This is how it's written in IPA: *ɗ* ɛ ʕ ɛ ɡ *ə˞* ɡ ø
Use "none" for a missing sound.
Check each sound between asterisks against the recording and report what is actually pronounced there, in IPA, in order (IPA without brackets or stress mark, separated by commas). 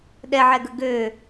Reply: ɗ, ə